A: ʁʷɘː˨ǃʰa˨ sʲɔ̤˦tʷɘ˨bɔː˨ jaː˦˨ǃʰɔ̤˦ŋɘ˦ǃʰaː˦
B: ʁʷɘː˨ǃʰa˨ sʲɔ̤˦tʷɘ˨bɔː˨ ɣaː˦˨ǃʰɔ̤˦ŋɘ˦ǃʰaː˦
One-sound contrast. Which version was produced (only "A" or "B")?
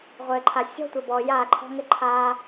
A